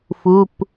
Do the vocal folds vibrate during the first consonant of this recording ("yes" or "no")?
no